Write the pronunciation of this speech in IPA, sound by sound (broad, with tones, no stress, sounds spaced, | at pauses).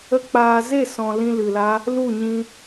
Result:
ə˦ k͡p aː˧ z e˦˨ s ɔ̃˨ l ĩ˧ l ɨ˨ l a˦ | l u˦˨ ɲ ĩ˧